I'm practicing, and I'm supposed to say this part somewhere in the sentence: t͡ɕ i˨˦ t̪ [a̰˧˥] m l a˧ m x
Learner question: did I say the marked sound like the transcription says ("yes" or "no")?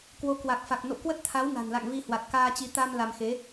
no